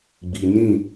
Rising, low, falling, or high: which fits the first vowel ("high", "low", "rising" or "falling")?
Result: low